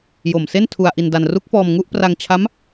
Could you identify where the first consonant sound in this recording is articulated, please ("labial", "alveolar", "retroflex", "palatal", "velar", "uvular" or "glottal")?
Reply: palatal